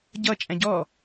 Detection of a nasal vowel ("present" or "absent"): present